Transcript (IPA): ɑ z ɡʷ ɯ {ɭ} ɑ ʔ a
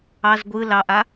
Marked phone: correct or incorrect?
incorrect